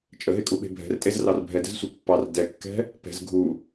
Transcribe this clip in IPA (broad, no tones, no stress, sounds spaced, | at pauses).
t͡ʃʼ ə ɦ e kʼ u ɓ e̤ bʱ ɛ̤ r tʼ e z r ɑ r bʱ ɛ d ɛ̤ z sʷ e pː ɑ r d ɛ kː ɛ̤ | p ɛ̤ z ɡʱ u